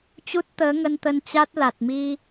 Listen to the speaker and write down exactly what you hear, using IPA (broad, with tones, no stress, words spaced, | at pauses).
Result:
t͡ɕu˦˥t̚t̪əː˨˦ŋə˧nt̪ə˧n t͡ɕa˦˥t̚la˨˩t̚mi˧